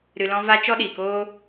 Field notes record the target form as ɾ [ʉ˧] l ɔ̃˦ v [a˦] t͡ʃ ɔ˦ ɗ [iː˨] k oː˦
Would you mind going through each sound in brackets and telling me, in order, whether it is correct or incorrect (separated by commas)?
incorrect, correct, correct